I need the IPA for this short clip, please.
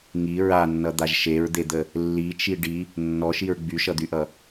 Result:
ŋ i ɹ a nː ʌ d̪ a ʒ ʃ e ɹ d̪ e d̪ ə | lː i t͡ʃ i ɖ i | nː ɔ ʃ i ɹ ɡ͡b y ʃ ʌ d̪ y ʔ ʌ

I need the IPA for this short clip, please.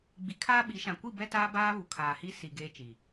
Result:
ɡ͡b i˨ kʰ aː˦ ɓ i˨˦ ʃ ã˨ kʷ i˦˨ b ɛ˦ t aː˦ b aː˦ β u˨ kʰ aː˨ h i˦ s i˨ ɡ eː˦ t͡ʃ i˨

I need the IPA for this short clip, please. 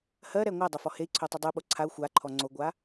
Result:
h ɜ ɾ ɛ ŋʷ ɜ dˤ ɜ f ɔ h e i̯ ǀʰ o tˤ u dˤ u ɓ o ǀʰ a u̯ xʷ a ǃʰ ɔ ŋ͡ǀ o ɡʷ a

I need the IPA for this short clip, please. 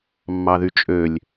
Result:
mː ɑ ð y t͡ʃʼ ø lʲ

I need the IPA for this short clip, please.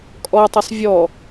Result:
kʼ ɔ tˤ ə sˤ vʲ ɔ

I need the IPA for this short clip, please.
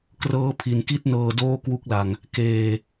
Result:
k r ɤː˦˥ pʰ i˨˩ n k i˥˩ t̚ n ɤː˧ d oː˥˩ k w u˦˥ k̚ l a˨˩ ŋ | k eː˨˩

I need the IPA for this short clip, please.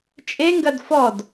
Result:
t͡ʃʼ e ŋ ɡ ɐ d f ɔ d

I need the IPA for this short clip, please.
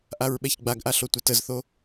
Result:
ʔ a ɹ ɓ ɛ ç ɡ͡b a ɡ ʔ a ɬ o tʷ ɛ t ə z θ o

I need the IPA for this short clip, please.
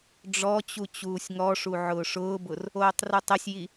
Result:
ɖ͡ʐ ɔ t͡ɕ u t͡ɕ uː sʲ ŋ ɔ ʂ u ʕ ʊː ʂ ʊː b ʊ r | oː tˤ r u tˤ ɪ sʲ j i

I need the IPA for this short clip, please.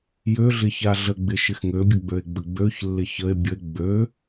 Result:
j ø ɮ ɪ ç a ɮ ə ɡ͡b ɪ ʃ ɪ x ŋ ø bʲ ə ɡ͡b ø e̯ ɡ͡b ə ɡ͡b ø ç lː ɪ ç ə e̯ bʲ ə e̯ ɡ͡b ø

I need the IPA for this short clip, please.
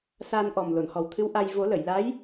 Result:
s a˧ n ʔ ɔ˨˩ m l o˨˩˨ n h ɔ˨˩ w t̪ʰ ɨ˧˥ w ʔ a˧ j v o˨˩˦ l ə˨˩˨ j l a˧˥ j

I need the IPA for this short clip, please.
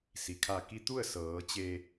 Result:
s i˩ kʰ a˧˩ k i˧ t̪ u˥˨ ə̯ s ɤː˩˧ t͡ɕ e˧

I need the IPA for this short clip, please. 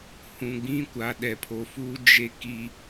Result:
h ũ˨ ɡ͡b ĩ˦ kʷ a˨ ɗ ɛ˨ pʰ o˨ f uː˦ d͡ʒ e˦ k i˦

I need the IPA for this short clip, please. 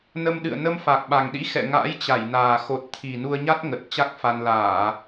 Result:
n ə˧ m ɗ ɨ̰˧˨ ə̯ n ə˧ m f a˨˩ k̚ ɓ a˨˩ ŋ ɗ ḭ˧˥ x ɛ̰˧˨ ŋ a̰ː˧˥ j t͡ɕ a˧˩ j n aː˨˩ x o˨˩ t̚ t̪ʰ i˨˩ n u˧ ə̯ ɲ a˦˥ t̚ ŋ ə˨˩ t̚ t͡ɕ a˦˥ k̚ f a˧ n l aː˧˩˨

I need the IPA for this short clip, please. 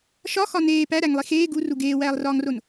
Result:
ʃ ɒ x ɒ n eː p æ ɾ æ ŋ lˠ i x eː ɡ u r u ɡ eː w æː lˠ r ɒː ŋ r o n

